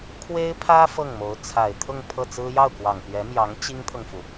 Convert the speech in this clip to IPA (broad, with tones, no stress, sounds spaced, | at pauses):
kʰ w e˥ ɪ̯ pʰ ä˥ f ɤ˥˩ ŋ m o˧˥ ʊ̯ t͡sʰ a˨˩ ɪ̯ t̪ʰ ʊ˥˧ ŋ pʰ ɤ˥˩ t͡s ɹ̩˥ j ɑ˥˩ ʊ̯ k w ɑ˨˩ ŋ p ɥ ɛ˧˥ m j ɑ˧˥ ŋ t͡ɕ i˥ ŋ t̪ʰ ɤ˨ ŋ f u˩